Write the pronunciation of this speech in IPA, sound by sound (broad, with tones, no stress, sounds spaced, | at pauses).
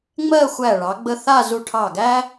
ŋ͡m ɜ˥˧ xʷ æ˧˩ ɭ ɑ˩˧ ɡ͡b ə˧ θ a˥˧ z u˧ ʈʰ ɑ˧˩ ɡ æ˥